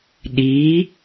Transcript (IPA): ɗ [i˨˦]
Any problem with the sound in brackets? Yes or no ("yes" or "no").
no